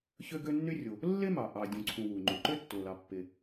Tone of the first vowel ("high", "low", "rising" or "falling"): high